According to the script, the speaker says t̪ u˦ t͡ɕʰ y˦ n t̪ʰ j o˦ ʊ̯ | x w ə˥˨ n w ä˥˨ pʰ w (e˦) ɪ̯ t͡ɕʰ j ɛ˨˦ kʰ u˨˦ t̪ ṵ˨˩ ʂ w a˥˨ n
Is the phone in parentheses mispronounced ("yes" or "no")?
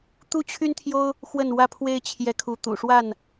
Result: no